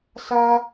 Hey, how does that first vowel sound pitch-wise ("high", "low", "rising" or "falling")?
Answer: high